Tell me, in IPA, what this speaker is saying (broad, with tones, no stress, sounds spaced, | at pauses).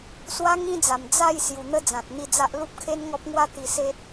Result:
s w a˦ ŋ ĩ˦ d͡z a˨˩ m d͡z a˥˧ j s j u˨˩ n̪ ə˦ d͡z ã˨ t̚ n̪ i˥˧ d͡z a˦ ʔ l u˦ p̚ kʰ e˦ n ŋ ɔ˦ p̚ ŋ w a˦ t̪ i˧ s e˦ t̚